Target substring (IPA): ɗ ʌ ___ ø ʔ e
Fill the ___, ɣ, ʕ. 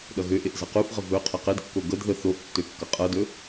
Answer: ɣ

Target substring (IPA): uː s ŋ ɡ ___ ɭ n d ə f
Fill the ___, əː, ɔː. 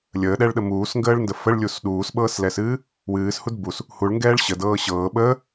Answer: əː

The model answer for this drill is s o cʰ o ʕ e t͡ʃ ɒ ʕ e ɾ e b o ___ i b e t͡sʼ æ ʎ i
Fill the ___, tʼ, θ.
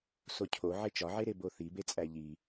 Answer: θ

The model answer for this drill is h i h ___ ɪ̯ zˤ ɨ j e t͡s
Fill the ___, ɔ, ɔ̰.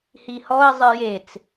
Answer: ɔ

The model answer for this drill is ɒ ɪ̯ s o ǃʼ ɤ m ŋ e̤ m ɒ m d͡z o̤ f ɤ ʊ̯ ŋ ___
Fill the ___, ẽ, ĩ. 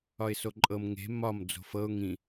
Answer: ĩ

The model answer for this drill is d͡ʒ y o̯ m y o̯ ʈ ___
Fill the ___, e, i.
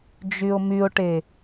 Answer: e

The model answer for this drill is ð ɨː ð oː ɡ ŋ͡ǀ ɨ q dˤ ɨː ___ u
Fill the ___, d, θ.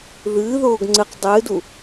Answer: d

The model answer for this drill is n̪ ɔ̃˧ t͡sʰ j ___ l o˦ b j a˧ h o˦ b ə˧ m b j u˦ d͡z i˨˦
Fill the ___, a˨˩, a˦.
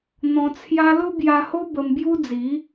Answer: a˦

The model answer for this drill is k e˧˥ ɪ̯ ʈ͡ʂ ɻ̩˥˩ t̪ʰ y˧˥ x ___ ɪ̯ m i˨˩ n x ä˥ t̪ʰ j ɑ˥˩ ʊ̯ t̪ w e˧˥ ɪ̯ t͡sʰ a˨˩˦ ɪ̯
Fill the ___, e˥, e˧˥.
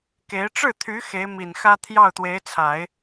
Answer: e˧˥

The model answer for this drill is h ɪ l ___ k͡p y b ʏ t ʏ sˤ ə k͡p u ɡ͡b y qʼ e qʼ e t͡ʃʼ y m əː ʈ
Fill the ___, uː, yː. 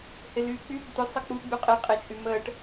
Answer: yː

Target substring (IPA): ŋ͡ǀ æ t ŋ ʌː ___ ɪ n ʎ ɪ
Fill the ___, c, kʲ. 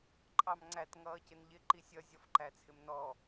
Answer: c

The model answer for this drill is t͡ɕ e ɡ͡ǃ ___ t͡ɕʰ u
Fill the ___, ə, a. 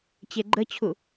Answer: ə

